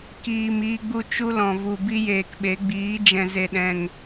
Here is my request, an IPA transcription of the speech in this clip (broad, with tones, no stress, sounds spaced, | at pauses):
k iː˨ m iː˦ ɡ͡b u˦ t͡ʃ u˦ l ɔ̃˨ v u˨ b i˦ j eː˨ k ɓ e˨˦ ɡ͡b iː˨˦ d͡ʒ ɛ̃˨ z e˨ ɗ ɛ̃˨ ŋ